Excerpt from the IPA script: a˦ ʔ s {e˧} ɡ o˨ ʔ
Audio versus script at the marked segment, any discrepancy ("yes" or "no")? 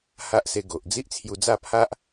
no